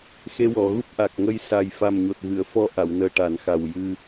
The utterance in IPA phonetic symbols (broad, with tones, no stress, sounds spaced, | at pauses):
x e˧ w ɔ˨˩˨ ɣ u˦˥ p̚ ʔ a˨˩ k̚ ŋ ə˧ j s a˨˩ j f a˨˩ m ɲ o˨˩ t̚ ɣ ɨ˨˩˨ ə̯ f ɔ˧ ʔ a˨˩˨ w n əː˨˩ ʈ a˨˩˦ n x a˨˩ w j ɨ˧